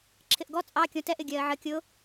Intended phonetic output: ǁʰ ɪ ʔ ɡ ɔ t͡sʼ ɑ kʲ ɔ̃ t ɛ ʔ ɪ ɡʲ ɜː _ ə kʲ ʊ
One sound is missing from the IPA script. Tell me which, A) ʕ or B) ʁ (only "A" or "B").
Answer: A